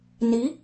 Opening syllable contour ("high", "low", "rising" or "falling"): rising